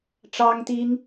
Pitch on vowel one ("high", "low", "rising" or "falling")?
high